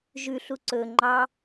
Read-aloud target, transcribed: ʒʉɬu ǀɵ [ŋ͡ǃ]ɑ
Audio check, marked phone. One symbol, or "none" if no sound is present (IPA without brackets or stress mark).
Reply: ŋ͡ǃ